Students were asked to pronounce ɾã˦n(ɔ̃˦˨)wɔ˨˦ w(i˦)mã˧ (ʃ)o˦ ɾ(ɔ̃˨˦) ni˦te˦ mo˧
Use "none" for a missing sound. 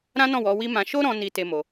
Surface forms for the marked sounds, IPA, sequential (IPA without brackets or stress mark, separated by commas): ɔ̃˦˨, i˦, ʃ, ɔ̃˦